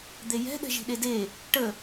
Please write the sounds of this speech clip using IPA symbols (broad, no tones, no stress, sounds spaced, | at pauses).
d̪ e j ɛ̤ ɗ ɛ̤ ʒ i̤ ɗ e d e | ʈ ə